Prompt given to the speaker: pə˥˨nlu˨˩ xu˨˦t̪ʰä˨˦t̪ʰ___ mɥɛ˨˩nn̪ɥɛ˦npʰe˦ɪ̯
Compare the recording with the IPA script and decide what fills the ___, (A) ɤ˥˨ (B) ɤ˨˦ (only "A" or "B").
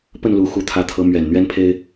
B